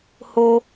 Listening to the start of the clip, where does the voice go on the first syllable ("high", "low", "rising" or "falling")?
low